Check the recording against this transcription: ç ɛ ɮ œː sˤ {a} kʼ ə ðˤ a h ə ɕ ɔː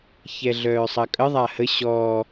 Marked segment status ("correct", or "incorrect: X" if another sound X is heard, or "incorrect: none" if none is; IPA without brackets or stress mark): incorrect: ɐ